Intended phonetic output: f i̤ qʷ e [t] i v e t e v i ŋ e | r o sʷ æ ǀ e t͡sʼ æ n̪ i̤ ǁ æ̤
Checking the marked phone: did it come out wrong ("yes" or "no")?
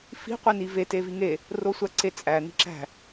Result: yes